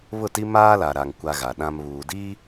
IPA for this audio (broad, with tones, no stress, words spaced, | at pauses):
βʊ˦˨ti˦ maː˦la˨ɾa˨ŋ kʷa˦ɣa˨ɗã˦m βuː˨ di˦